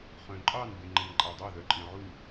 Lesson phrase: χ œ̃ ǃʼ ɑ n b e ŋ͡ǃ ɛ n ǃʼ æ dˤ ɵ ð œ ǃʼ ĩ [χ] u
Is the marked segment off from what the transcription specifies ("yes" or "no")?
yes